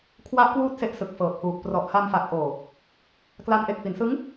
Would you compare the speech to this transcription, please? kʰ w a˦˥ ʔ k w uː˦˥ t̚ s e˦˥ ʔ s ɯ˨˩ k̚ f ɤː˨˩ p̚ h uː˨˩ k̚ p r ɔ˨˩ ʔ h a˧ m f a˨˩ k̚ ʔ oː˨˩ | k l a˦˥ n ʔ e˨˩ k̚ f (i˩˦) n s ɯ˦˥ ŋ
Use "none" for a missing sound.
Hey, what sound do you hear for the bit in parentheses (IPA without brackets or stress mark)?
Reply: i˩˦